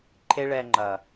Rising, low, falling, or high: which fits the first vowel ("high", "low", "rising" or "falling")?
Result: high